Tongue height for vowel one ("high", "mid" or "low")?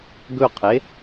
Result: mid